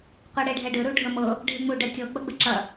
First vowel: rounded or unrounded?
unrounded